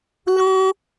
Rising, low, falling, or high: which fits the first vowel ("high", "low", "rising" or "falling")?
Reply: high